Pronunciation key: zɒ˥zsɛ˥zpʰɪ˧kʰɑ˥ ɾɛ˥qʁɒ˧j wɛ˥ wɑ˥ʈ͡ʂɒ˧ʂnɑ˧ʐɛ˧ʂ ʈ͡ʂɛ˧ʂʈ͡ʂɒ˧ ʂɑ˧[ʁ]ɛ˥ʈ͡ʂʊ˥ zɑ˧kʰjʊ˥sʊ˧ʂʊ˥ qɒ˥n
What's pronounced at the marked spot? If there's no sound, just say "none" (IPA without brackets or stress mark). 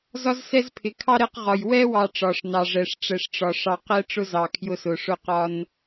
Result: q